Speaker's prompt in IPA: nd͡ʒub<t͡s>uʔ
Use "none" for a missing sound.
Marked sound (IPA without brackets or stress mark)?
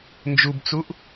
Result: t͡s